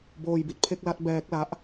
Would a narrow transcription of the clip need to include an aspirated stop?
yes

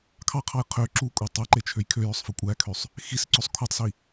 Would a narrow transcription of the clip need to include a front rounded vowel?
yes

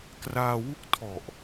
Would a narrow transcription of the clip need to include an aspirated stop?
yes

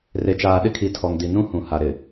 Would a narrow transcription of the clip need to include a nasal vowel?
yes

